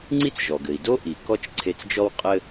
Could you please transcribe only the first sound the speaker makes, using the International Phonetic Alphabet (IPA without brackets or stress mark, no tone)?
ŋ͡ǀ